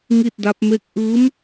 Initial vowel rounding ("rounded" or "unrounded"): unrounded